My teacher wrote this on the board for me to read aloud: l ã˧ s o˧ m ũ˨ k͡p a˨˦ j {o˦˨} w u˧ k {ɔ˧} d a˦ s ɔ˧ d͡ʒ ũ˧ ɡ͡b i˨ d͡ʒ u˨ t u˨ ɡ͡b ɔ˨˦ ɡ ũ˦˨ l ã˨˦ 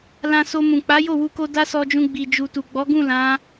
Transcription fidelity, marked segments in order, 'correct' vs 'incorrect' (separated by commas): correct, incorrect